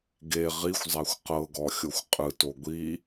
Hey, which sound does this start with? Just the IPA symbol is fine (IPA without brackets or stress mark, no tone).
ɡ